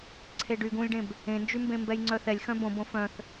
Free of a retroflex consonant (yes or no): no